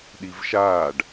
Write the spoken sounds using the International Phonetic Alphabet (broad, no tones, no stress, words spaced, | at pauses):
ɗivʃaːɖ